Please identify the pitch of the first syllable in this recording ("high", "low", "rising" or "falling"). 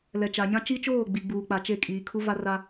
low